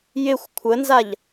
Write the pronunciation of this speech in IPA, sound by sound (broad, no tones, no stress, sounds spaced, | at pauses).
j ɪ xʷ kʷʰ ə n z a ʎ